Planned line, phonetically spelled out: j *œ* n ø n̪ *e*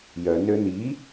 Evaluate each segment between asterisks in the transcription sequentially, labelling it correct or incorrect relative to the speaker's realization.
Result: correct, incorrect: i

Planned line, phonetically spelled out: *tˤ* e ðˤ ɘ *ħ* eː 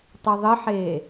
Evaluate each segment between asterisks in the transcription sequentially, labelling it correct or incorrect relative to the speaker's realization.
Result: correct, correct

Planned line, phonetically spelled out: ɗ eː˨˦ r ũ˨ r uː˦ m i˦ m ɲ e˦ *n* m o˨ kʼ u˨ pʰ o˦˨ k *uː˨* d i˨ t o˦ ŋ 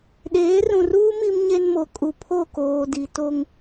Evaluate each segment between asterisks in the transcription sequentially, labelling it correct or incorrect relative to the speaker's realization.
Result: correct, incorrect: oː˨

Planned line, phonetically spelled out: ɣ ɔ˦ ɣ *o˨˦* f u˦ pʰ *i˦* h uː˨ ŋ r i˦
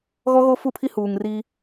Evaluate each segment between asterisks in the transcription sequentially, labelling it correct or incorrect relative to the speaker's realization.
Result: incorrect: o˦, correct

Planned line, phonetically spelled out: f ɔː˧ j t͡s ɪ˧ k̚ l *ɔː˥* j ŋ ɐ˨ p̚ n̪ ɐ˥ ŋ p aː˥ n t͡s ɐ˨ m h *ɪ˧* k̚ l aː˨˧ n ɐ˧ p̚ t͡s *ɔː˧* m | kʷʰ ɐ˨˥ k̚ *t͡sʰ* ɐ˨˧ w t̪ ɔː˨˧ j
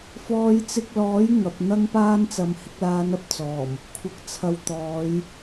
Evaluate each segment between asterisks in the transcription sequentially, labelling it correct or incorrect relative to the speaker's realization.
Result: incorrect: ɔː˨˥, correct, incorrect: ɔː˨˩, correct

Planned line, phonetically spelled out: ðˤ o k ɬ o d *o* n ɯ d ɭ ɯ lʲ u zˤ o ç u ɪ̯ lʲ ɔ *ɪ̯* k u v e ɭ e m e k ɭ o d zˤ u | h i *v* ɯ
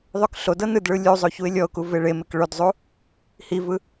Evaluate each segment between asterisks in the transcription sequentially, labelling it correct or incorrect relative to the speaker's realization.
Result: incorrect: ɤ, incorrect: ʊ̯, correct

